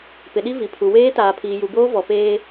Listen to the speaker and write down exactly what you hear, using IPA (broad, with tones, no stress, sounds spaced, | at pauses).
p ɪ˨ ɗ i˦ v i˨ pʰ u˨ w eː˦ t aː˨ pʰ iː˨ j u˨ b oː˦ v ɔ˨ p eː˦